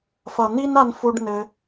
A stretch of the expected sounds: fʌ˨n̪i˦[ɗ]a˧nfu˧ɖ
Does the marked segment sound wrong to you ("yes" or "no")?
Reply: yes